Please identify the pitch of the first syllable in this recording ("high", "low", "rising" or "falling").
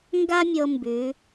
high